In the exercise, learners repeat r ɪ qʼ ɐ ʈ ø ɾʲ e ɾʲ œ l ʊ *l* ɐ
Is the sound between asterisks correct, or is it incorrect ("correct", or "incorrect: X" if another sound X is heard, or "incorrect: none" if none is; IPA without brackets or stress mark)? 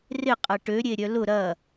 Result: incorrect: ɾ